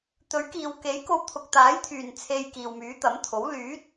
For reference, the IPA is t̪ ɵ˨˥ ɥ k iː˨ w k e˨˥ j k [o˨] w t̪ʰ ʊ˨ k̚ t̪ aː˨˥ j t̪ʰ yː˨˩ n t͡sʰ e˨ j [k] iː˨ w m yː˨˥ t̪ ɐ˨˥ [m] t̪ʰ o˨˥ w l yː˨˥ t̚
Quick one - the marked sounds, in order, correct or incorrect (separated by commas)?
incorrect, correct, correct